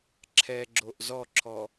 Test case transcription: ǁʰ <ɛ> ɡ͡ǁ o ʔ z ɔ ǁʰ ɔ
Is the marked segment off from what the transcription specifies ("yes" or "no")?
no